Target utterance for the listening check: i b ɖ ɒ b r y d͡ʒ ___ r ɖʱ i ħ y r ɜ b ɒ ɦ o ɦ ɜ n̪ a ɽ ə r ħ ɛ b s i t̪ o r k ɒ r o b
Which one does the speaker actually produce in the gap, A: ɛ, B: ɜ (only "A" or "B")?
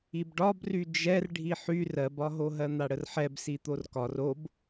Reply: A